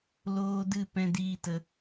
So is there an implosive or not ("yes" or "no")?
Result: no